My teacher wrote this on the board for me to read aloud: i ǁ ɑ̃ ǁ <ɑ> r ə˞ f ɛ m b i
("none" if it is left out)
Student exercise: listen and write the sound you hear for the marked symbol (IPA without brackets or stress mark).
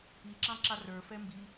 ɑ